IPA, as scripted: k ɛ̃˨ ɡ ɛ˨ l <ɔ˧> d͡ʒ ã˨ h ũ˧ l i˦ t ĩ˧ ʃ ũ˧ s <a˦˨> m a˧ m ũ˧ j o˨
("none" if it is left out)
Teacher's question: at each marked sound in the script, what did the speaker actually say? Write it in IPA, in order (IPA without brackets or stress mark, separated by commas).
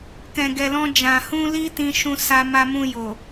ɔ̃˧, a˧